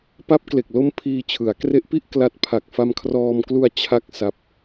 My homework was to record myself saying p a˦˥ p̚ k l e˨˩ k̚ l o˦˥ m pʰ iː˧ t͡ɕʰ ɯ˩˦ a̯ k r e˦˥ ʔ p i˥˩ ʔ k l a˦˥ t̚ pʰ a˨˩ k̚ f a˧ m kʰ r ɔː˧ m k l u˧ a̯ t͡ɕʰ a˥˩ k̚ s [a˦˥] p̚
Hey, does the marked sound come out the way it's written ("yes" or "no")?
yes